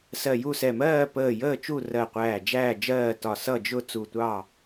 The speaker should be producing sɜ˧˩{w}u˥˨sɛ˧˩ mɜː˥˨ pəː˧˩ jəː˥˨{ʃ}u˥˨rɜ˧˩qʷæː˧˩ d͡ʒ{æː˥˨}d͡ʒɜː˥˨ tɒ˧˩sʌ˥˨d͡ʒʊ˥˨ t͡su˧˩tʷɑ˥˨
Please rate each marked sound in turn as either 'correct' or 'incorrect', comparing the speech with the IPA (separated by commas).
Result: incorrect, incorrect, correct